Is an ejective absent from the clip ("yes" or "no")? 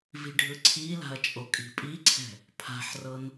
no